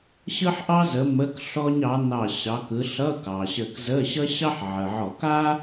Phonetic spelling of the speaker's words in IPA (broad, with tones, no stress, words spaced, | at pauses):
ɕɯ˥ħʔɑ˥zə˨˦ mə˧˥˧kɬɔ˥ɲ ɑ˨˦ nɑ˧˩ ɕɑ˨˦kɯ˨˦ ɬʌ˧˥˧kɑ˩ɕə˧˩kzə˧˥˧ ɕʌ˥ɕɑ˥ħ ʕə˩ʕɔ˧˩˧k a˥